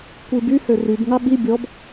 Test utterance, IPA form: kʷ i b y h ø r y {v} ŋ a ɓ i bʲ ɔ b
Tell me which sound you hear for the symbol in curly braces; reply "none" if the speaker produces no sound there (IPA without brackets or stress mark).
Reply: b